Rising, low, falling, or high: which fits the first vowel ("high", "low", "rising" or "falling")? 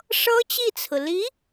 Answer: high